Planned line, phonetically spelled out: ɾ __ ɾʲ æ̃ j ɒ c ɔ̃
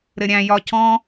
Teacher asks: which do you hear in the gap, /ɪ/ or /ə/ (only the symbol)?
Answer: ɪ